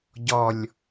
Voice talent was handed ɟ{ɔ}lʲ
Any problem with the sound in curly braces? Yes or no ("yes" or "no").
no